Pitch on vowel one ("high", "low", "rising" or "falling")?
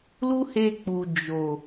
high